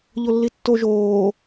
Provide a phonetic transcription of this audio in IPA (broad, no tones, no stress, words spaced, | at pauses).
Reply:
ʎolːitːo ʒoː